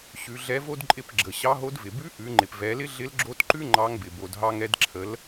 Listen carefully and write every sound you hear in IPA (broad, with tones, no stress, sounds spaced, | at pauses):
ɕ ʉ˩˧ ɮ ɛ˧˥ v o˥ d ǃʼ ɪ˧˥ p ɡ͡ǁ ə˩ ɕ ɑ˧˥ ɦ o˧˥ d v ɪ˩ b ʉ˧˥ ʔ ʉ˩˧ ŋ͡ǃ ɪ˩ p v ɛ˩˧ l ɪ˥ ɮ ɪ˧˥ l ɡ͡ǁ o˧˥ t ǃ ʉ˥ ŋ͡ǃ ɑ˧˥ ŋ b ɪ˩ b o˩ d ɦ ɑ˧ ŋ ɛ˧ d ǁʰ ə˩˧ l